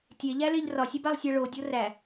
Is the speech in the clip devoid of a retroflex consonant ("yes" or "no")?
no